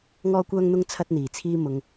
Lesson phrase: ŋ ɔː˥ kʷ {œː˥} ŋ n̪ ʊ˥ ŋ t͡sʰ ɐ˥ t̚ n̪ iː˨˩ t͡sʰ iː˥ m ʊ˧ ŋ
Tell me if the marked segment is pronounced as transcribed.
yes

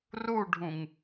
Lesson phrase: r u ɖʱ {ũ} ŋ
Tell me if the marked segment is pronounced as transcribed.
yes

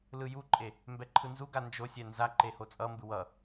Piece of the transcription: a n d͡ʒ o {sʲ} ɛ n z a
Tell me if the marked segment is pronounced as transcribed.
yes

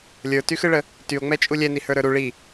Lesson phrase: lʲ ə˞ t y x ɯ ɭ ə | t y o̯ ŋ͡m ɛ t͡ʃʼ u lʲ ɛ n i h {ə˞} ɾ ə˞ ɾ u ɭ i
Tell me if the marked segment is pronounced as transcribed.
yes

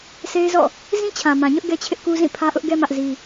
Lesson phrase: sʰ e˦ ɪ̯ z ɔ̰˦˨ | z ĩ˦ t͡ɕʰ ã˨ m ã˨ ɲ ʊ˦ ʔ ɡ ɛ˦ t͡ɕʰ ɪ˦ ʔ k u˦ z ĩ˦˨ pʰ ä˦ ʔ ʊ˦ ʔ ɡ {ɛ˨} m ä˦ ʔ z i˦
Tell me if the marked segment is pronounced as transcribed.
no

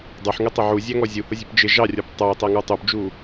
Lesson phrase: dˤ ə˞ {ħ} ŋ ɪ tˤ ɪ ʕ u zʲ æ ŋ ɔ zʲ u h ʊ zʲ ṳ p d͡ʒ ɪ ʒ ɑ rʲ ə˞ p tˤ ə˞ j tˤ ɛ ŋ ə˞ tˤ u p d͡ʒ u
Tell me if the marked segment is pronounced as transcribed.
yes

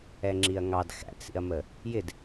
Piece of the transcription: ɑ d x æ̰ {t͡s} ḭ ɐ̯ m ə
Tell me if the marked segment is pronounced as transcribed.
yes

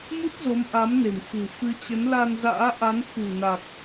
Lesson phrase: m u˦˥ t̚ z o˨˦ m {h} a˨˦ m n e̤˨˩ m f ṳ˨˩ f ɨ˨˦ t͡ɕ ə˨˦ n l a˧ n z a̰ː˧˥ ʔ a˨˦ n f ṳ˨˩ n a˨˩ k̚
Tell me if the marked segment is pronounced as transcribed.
no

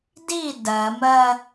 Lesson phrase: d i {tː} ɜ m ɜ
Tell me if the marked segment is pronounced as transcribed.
no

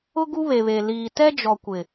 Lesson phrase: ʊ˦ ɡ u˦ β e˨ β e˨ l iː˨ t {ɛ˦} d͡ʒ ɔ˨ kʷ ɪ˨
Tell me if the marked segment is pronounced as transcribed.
yes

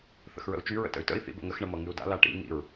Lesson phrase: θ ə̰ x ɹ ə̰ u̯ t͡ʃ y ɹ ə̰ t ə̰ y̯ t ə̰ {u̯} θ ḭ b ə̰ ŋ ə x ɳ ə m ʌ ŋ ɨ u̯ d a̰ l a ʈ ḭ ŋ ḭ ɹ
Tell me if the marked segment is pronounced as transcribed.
no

